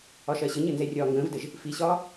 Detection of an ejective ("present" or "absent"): absent